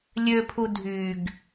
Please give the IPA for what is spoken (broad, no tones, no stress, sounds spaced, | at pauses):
lʲ ø pʰ u dʱ y ɡ